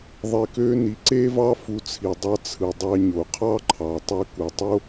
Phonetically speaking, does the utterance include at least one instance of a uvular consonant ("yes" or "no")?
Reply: yes